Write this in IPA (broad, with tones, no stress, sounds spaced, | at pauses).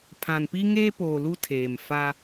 pʰ ã˨ n p i˦ ŋ eː˦ p oː˨ l u˦ tʰ eː˨ m f a˦